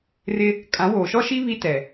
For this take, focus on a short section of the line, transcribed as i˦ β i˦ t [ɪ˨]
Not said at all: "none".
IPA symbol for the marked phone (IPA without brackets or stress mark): ɛ˨